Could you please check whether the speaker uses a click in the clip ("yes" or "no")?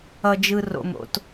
no